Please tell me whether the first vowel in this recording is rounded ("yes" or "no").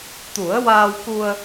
yes